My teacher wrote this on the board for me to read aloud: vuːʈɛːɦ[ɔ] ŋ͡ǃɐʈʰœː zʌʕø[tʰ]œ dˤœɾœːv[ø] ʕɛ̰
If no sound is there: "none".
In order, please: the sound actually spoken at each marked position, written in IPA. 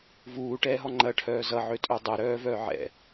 ɔ, tʼ, œ

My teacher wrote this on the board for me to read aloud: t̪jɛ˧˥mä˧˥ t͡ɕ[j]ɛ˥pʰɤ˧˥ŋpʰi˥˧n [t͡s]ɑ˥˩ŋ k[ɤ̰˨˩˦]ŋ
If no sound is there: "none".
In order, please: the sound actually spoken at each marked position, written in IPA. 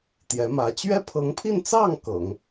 ɥ, t͡s, ɤ̰˨˩˦

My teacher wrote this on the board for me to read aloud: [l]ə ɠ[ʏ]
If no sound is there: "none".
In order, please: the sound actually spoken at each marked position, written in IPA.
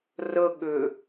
r, ʏ

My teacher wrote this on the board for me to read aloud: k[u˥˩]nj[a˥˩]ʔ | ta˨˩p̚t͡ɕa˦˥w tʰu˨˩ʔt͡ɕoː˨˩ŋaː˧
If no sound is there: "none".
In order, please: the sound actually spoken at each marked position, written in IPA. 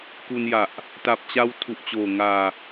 u˧, a˨˩

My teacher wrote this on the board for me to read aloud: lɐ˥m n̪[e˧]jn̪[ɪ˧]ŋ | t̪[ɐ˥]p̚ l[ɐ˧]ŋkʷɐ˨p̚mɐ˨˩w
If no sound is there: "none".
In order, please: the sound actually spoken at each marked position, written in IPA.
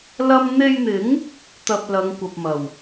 e˧, ɪ˨˥, ɐ˧, ɐ˨˧

